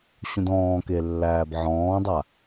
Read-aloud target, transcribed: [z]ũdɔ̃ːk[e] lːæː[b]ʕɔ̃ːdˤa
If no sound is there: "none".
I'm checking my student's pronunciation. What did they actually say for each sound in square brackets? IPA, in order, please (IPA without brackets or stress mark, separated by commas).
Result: ɕ, e, b